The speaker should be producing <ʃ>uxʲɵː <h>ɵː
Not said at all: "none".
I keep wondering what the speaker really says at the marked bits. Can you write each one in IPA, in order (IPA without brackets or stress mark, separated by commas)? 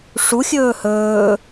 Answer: ʂ, h